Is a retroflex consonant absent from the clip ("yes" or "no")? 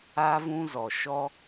yes